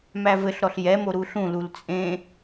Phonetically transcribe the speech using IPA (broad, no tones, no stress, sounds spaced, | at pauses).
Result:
m æ v ɘ ɬ ɾ ɔ ɬ j ɛ m o ɾ u ɬ ũ l u l t͡sʼ ẽ